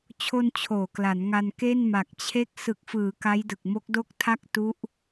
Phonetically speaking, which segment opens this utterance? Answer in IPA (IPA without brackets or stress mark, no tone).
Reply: t͡ɕʰ